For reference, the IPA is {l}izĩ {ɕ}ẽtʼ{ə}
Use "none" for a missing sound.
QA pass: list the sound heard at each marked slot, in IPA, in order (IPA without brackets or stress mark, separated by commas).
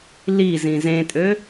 l, z, ø